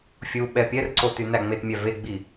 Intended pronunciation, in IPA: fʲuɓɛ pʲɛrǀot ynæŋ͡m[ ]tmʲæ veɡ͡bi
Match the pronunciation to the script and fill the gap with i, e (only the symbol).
e